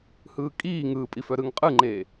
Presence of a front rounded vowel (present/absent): present